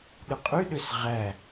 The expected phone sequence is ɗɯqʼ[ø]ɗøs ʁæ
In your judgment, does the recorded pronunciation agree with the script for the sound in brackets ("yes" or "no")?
no